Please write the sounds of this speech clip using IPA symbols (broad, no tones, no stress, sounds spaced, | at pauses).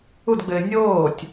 u d ɡ͡b ɘː nʲ oː tʲ